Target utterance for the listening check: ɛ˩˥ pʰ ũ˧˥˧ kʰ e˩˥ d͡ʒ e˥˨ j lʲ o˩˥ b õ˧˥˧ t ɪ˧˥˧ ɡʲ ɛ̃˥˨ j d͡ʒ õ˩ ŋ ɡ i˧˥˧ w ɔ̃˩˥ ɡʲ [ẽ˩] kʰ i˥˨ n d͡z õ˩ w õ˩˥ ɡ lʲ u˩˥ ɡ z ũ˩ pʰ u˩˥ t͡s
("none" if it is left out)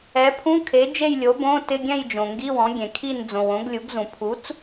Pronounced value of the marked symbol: ẽ˩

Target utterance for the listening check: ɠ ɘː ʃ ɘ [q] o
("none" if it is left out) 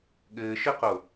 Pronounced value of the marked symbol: q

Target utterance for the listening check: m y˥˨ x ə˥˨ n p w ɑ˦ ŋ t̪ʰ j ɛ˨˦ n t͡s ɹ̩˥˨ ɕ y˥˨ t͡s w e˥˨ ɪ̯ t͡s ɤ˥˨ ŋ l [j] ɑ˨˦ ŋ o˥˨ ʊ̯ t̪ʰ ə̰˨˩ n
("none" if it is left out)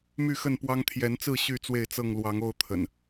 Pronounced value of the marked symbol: w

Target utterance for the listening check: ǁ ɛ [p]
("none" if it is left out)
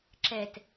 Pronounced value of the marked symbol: t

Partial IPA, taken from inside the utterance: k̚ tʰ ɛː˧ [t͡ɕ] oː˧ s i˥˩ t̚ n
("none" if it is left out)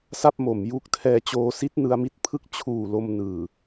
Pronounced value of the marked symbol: t͡ɕ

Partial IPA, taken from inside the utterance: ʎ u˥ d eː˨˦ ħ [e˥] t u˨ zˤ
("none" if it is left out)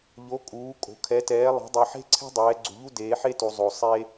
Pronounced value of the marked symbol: e˥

